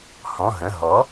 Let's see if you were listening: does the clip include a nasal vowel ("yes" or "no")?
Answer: yes